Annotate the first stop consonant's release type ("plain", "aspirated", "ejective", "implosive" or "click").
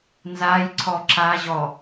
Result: click